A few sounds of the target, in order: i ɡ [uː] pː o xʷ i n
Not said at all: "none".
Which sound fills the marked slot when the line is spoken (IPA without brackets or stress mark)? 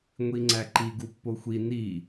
u